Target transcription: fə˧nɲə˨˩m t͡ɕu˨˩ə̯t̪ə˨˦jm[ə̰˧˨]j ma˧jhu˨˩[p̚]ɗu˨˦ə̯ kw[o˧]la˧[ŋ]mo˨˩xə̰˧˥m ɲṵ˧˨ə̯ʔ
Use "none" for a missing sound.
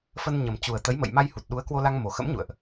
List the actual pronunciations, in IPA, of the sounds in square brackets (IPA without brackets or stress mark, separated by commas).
ə̰˧˨, t̚, o˧, ŋ